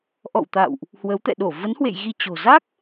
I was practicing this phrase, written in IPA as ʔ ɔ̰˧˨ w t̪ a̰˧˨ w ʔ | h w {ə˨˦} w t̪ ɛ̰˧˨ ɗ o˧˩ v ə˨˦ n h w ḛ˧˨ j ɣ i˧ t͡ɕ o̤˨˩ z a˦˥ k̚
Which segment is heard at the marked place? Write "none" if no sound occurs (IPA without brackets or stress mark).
ə˨˦